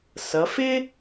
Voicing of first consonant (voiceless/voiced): voiceless